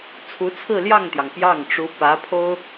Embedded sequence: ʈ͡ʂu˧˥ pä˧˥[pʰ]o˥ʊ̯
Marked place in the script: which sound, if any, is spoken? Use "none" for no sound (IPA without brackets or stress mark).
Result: pʰ